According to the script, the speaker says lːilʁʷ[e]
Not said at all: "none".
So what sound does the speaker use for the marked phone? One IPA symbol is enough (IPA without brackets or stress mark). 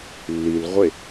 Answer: e